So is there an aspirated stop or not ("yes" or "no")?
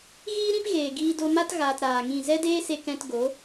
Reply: no